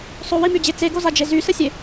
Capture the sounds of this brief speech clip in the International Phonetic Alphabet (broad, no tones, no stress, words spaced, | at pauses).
sˤowimyd͡ʑe t͡seɡozad͡ʒe zysəsʲe